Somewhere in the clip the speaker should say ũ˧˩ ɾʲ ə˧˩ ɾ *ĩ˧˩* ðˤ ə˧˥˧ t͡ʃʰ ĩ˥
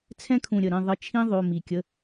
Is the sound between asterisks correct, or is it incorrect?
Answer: incorrect